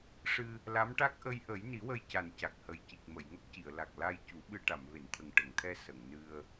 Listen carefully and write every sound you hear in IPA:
ʂ ɨ˧ | l a˧˥ m ʈ a˦˥ k̚ ʔ ə˧ j ʔ ə˨˩˦ j n i˨˩˦ w ə˧ j c a˨˩ n c a˨˩ k̚ h ə˨˩ j c i˨˩ k̚ m ə˨˩˨ j ŋ ə˦˥ k̚ c i˨˩˨ ə̯ l a˨˩ k̚ l a˧ j c u˨˩˦ ɓ ɨ˧ ʈ a˨˩˨ m v e˨˩˨ n t̪ʰ ə˨˩ ŋ ʈ ə˨˩˨ ŋ t̪ʰ ɛ˧ s ə˨˩˨ ŋ n ɨ˧ ə̯

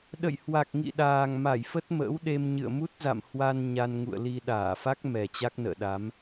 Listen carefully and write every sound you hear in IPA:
ɗ ə̰˧˨ j h w a˨˩ k̚ ŋ ḭ˧˨ ɗ aː˨˩ ŋ m a˧˩ j f ə˦˥ t̚ m ə̰ː˧˥ w ɗ e˧ m ɲ ɨ̰˧˨ ə̯ m u˦˥ t̚ z a̰˧˨ m h w a˧ n ɲ a˧ n ŋ ṵ˧˨ ə̯ l i˧ ɗ aː˧˩ f a˦˥ k̚ m ɛ˨˩ t͡ɕ a˦˥ k̚ n ə̰ː˧˨ ɗ a˨˦ m

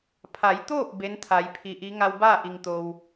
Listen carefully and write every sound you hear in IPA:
pʰ a˩˧ j t̪ oː˥˨ p̚ b e˧˥ n t̪ʰ a˩˧ j pʰ i˩ ʔ i˧˥ ŋ a˧ w b aː˥˨ ʔ i˩ ŋ t̪ o˩ w

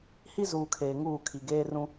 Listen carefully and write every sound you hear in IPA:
h i˦ z uː˨ kʰ eː˨ ŋ uː˦˨ kʰ i˨ ɡ eː˦ r ũ˦

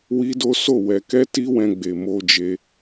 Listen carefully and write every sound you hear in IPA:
w i˦ d o˦ s o˦˨ w ɛ˧ k ɛ˦ t i˦ w ɛ̃˧ ɡ͡b e˨ m o˧ d͡ʒ e˧

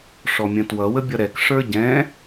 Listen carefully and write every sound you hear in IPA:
ʂ ɔ mʲ ə̃ t w ʌ w ə bʲ ʌ ɾ ɛ k ʂ ə˞ ɟ ɛ̃

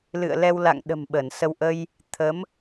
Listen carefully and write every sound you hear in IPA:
l ɨ̰˧˨ ə̯ l ɛ˧ w l a̰˧˨ ŋ ɗ ə̤˨˩ m ɓ ə˧˩ n s ə˧ w ʔ ə˧ j | t̪ʰ ə˨˦ m

